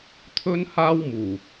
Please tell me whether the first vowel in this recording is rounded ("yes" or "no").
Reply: yes